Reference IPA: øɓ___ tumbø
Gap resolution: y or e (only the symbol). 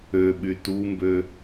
y